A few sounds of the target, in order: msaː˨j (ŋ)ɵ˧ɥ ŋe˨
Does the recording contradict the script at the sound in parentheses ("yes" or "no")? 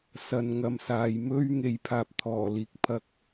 yes